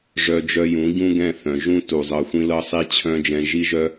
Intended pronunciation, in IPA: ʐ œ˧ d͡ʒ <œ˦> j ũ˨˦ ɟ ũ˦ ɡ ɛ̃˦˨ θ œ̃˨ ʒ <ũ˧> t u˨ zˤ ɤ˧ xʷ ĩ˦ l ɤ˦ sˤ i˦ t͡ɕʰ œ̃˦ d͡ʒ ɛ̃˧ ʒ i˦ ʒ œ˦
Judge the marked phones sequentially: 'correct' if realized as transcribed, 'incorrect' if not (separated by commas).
incorrect, incorrect